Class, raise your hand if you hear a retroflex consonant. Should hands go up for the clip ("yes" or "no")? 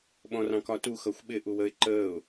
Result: no